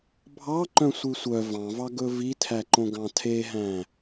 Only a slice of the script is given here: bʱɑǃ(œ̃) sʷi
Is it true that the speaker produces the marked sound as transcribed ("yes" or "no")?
yes